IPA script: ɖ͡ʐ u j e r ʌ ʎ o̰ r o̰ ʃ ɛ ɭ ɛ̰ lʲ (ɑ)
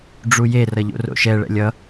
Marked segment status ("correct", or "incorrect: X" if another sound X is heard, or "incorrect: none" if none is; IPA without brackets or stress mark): incorrect: ʌ